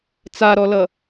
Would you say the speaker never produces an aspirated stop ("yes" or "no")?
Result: yes